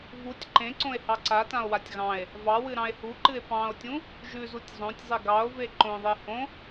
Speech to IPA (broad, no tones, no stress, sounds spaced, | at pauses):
v u tʲ ǃ ẽ ǀ õ e̯ h ɑ ǀ a t ã o̯ w a tʲ ɣ ɑ̃ e̯ | v ɑ w ɨ ɾ ɑ̃ e̯ h u ǃ ɨ e̯ p ɑ̃ o̯ tʲ ũ | ʒ ʉ z u tʲ zˤ õ tʲ zˤ e ɡ ɑ o̯ v e ǃ õ ðˤ e h õ